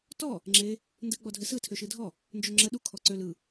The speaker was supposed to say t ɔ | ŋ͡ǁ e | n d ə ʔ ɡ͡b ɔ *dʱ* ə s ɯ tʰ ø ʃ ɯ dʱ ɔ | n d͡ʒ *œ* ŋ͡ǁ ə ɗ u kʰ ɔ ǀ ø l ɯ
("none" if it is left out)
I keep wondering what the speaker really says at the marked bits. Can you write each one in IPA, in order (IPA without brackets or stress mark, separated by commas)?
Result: dʱ, ø